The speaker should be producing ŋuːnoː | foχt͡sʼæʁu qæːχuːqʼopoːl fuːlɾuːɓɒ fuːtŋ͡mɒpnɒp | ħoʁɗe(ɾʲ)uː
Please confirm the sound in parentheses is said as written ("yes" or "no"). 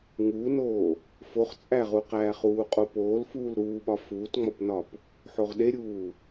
yes